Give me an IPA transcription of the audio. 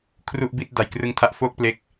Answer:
kʰ r u˥˩ ʔ b i˥˩ t̚ d a˨˩ j k r ɯ˦˥ ŋ tʰ a˦˥ ʔ f oː˥˩ k̚ p l e˦˥ k̚

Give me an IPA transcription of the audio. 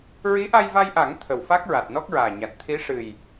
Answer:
ɹ i˧˥ ʔ a˧ j v a˧ j ʔ a˨˩˦ ŋ t̪ʰ ə˨˩ w f a˦˥ k̚ ɹ a˨˩ t̚ n ɔ˦˥ k̚ ɹ aː˨˩ ɲ a˨˩ t̚ t̪ʰ i˧˥ ʂ ɨ˨˩ j

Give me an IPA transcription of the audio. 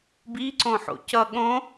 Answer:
b i ǀ õ ħ o̰ c ʌ ɠ õ

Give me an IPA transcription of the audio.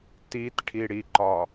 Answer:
t i t ʈʰ i ɽ i ǃ ɒ

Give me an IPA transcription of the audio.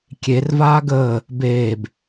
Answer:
kʲ e r v aː ɡ əː | b eː b

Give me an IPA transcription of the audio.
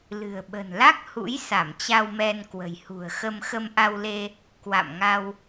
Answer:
l ɨ̤˨˩ ə̯ ɓ ə̤˨˩ n l a˦˥ k̚ h ṵ˧˥ j s a˧˩ m t͡ɕ a˧ w m ɛ˧ n k w ə̤˨˩ j h ṳ˨˩ ə̯ x ə˧ m x ə˧ m ʔ a˧ w l e˧ | k w a̰˧˨ m ŋ a˧ w

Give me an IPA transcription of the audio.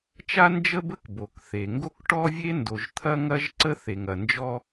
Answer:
t͡ʃ a˥ n d͡ʒ ə˥ b ə˥ k b o˩ k θ e˩ ŋ ɡ o˥ k ʈ ɔ˥ vʲ e˥ n d o˩ ʒ t̪ʰ ɐ˥ ŋ ɐ˥ ʒ ǀ ə˥ θ e˩ ŋ ɐ˩ n d͡ʒ ɔ˥

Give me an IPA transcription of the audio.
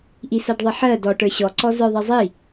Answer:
ʔ i s a ɖ ðˤ i ħ ɜ d ɔ ʈ ə˞ ɕ ɔ ǀ ɔ z ə˞ ðˤ ɛ zˤ i

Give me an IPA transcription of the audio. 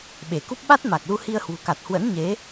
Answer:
ɓ e˧˩ k u˦˥ p̚ ɓ a˦˥ t̚ m a˨˩ k̚ l u˧ h i˧ ə̯ h w ṳ˨˩ k a˨˩ t̚ h w ə̰˧˥ n ɲ e˨˦

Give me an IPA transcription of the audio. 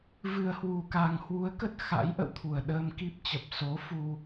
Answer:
v ɨ˨˩ ə̯ h w u˨˩ k a˨˩ ŋ h w u˨˦ ə̯ k ə˦˥ t̚ x a̰˧˥ j ʔ ə̰˧˨ w t̪ʰ u˨˩ ə̯ ɗ əː˧ m k i˦˥ p̚ t͡ɕ ə˨˩ p̚ s o˨˦ f u˧

